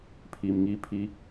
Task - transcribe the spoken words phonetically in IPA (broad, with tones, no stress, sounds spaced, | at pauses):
pʰ i˨ m ŋ i˦ pʰ i˦